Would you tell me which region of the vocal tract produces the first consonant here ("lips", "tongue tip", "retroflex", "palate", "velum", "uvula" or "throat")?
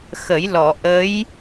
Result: velum